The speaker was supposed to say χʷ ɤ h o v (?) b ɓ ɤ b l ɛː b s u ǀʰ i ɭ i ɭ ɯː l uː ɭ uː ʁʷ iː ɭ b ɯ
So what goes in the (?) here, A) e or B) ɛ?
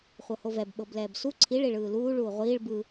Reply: B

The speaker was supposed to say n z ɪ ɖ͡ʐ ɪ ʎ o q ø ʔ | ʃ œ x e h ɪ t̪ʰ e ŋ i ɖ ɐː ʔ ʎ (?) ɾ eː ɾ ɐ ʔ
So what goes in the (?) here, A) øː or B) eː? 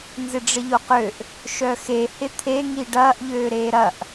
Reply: A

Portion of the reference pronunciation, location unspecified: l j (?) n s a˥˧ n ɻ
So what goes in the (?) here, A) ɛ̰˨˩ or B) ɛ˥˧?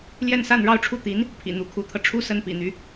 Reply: B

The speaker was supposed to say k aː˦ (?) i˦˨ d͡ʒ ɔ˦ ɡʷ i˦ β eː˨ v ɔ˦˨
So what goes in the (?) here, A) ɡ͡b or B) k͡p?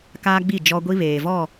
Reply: A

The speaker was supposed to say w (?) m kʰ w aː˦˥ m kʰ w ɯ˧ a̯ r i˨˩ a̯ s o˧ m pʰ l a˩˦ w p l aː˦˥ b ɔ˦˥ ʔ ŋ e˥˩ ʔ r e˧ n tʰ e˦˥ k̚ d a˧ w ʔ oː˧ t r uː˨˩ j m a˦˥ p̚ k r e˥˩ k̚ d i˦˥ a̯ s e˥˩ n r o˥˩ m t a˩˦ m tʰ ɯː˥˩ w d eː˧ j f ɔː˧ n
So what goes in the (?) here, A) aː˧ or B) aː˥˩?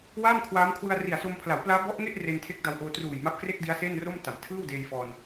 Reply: B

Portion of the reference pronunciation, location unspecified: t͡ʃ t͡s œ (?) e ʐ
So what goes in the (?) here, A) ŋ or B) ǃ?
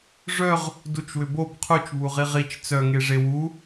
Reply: A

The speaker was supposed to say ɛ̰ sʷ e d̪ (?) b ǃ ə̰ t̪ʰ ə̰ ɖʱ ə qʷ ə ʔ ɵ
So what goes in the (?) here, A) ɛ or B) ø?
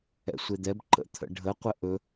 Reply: A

